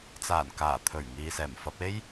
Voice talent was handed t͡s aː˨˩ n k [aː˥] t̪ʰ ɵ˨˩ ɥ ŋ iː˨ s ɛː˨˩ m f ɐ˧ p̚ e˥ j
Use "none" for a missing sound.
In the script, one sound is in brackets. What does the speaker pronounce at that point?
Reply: aː˨˩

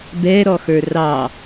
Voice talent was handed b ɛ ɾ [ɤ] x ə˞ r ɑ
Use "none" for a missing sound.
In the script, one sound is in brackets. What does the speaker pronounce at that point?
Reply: ɔ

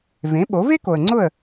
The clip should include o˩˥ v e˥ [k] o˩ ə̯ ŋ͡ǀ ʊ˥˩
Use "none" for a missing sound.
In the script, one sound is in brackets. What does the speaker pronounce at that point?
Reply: k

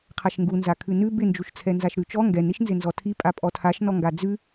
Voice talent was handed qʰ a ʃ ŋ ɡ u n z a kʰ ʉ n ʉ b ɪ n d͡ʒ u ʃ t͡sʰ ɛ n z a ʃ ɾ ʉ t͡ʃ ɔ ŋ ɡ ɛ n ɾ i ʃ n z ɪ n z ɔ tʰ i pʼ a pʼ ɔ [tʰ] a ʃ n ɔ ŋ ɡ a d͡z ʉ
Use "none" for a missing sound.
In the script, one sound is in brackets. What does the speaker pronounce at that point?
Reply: tʰ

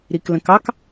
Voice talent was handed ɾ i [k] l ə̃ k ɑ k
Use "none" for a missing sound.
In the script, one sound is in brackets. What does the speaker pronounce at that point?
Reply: k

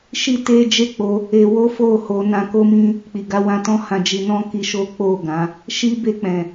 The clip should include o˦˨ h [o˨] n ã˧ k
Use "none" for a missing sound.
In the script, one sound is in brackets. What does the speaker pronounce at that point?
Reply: o˧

